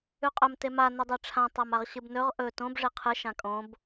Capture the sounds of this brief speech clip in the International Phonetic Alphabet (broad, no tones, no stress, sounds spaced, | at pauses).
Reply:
ʉ qʼ ɵ m t e m a n ɵ dˤ e ʈ͡ʂʰ ã tˤ a m a ʁ ɕ ɨ b n ɵ ʁ ʔ ɵ t õ b ʐ e qʰ ɨ ʃ ã kʼ õ b